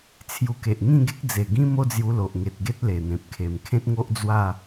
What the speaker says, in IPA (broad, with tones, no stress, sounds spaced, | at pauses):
t͡sʰ j u˧ k e˨ ʔ ŋ ĩ˥˧ ɡ e˦ k̚ d͡z e˨˩ ɡ ĩ˦ m o˦ d͡z j u˧ l o˨ ʔ ŋ e˨ t̚ ɡ e˦ t̚ l e˨˩ n̪ ẽ˨ p̚ kʰ e˨˩ m kʰ ẽ˦ t̚ ŋ o˦ ʔ d͡z w a˥˧